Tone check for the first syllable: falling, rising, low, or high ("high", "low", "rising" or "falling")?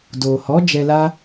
low